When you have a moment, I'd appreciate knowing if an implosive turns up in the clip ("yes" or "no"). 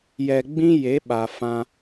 yes